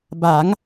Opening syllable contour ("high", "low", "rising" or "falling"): rising